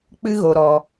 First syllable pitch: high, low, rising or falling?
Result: high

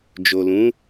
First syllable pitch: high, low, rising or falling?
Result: low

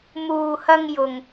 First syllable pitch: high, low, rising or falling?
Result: low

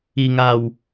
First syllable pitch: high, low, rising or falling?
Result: low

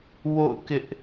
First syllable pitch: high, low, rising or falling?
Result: falling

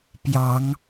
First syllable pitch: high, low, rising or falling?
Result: rising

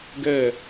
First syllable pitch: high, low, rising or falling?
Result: falling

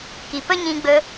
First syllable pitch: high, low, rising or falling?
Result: low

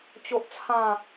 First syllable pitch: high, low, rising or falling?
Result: high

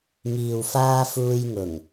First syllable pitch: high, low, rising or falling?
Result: low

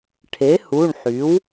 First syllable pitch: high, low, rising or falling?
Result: rising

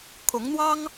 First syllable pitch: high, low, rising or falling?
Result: rising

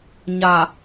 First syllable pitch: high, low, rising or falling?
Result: low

